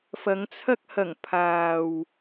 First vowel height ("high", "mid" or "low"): low